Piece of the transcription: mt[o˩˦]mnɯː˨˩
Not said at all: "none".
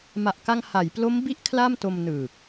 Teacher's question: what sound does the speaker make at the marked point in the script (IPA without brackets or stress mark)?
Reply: o˧